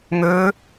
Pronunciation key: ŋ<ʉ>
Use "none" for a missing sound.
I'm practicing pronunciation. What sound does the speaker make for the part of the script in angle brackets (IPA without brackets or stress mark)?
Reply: ø